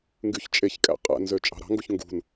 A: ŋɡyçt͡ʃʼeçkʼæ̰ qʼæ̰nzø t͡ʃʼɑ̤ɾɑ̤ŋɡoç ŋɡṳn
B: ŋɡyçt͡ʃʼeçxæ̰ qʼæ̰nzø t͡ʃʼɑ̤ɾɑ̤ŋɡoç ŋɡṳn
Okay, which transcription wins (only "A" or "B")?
A